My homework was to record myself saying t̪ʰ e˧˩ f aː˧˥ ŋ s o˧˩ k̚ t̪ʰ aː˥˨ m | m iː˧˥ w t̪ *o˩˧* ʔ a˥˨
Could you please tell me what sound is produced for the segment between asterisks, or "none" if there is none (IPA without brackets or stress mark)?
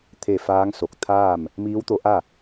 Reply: o˧˥